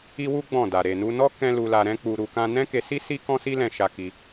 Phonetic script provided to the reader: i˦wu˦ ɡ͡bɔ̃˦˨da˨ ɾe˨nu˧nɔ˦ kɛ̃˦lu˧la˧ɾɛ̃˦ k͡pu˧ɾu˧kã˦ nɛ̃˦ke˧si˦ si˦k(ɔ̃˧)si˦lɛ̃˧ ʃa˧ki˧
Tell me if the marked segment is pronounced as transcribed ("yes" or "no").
no